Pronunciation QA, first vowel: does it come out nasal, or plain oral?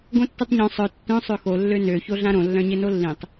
nasal